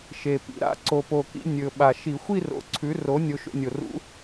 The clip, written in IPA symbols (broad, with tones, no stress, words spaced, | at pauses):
ʃe˨˩pḭ˩˥ɾa̰˩˥ ǀo˨˩po˨˩kḭ˧ nʲɵ˨˩ ɓa˨˩ʃi˧˩˧ xʷi˥˧ro̰˨˩ǀʰʉ˩˥ro˩˥ nʲo˧ʃo̰˧nʲo˨˩rṵ˧˥